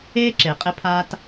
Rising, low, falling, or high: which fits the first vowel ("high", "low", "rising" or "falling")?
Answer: high